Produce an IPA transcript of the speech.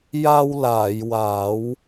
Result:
j a˧ w l aː˨˩˨ j w a˨˩˦ w

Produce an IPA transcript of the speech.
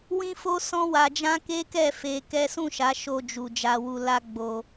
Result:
w ĩ˦ f o˦ s ɔ̃˦ w a˧ d͡ʒ ã˦ k e˦ k ɛ˦˨ f e˧ k ɛ˦ s ũ˦˨ ʃ a˨˦ ʃ o˧ d͡ʒ u˨ d͡ʒ a˧ w u˧ l a˦ ɡ͡b o˧

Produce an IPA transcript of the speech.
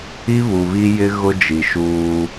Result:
i˦ β u˨ β i˦ j ɪ˦ ɣ ʊ˦ d͡ʒ i˨ ʃ uː˦

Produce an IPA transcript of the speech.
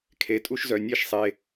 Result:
kʰ e˩˧˩ tʼ u˥˨ ʃ z œ˩˧˩ nʲ e˥˨ ʃ sˤ e˩˧˩

